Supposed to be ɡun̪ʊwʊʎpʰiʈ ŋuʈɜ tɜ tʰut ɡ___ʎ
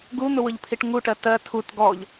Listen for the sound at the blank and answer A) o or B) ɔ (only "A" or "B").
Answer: B